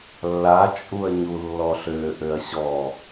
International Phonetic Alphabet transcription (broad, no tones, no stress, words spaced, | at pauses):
lːat͡ʃʼuɐ̯ɲu lːɔɬøʔøɐ̯ ɕɔ